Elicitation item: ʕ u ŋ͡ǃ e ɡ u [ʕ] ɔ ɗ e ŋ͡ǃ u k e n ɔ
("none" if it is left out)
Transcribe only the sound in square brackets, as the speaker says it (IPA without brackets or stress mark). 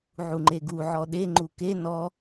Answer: ʕ